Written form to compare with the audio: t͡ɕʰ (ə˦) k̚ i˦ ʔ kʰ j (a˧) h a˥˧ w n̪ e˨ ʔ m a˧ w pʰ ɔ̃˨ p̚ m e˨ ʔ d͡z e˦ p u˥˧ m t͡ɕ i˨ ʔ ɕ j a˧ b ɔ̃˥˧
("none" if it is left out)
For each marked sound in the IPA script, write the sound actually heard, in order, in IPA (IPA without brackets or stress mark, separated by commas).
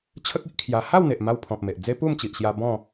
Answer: ə˦, a˧